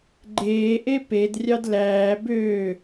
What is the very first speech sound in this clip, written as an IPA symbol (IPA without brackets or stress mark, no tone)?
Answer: ɡ͡ǃ